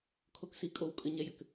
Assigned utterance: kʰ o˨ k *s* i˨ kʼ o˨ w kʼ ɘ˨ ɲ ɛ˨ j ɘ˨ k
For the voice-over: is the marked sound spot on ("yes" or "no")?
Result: yes